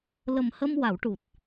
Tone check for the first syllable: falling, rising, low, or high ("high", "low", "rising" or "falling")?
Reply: low